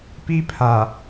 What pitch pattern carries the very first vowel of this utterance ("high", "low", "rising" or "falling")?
high